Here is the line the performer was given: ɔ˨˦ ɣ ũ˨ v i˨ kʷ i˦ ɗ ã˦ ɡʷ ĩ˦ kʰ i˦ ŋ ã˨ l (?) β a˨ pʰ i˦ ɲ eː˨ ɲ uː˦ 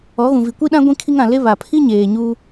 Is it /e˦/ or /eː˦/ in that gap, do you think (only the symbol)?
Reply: e˦